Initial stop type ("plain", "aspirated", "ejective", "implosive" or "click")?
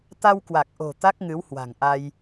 plain